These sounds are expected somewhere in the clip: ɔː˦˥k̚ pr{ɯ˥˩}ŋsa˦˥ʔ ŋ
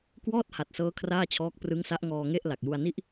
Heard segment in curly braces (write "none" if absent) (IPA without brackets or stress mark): ɯ˦˥